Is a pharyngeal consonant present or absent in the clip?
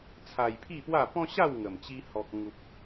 absent